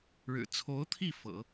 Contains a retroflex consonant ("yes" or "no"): yes